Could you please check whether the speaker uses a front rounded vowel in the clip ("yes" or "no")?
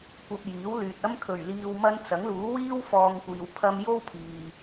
yes